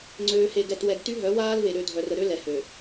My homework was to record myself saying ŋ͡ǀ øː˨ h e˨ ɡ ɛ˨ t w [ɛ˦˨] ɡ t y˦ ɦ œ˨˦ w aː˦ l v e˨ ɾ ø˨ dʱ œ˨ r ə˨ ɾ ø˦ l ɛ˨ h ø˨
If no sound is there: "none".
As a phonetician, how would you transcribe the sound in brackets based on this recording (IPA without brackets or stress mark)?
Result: ɛ˨